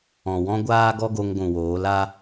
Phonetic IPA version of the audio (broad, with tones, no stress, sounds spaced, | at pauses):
ɔ̃˨ w ɔ̃˦ ɡʷ aː˦ ɡ ɔ˦ ɡ o˧ ŋ ɡʷ ũ˨ w oː˨˦ l a˦